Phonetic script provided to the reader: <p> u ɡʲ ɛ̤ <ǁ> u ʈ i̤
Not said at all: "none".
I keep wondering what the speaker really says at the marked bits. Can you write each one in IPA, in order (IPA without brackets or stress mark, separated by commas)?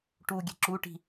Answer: ʈ, ǁ